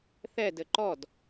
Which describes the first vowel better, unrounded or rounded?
unrounded